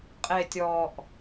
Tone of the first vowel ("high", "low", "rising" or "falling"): low